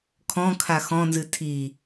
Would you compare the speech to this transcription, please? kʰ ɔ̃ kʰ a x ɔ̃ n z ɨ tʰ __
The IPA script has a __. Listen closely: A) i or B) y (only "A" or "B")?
A